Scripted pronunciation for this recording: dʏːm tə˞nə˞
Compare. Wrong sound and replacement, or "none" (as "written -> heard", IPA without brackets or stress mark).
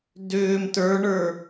n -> ɳ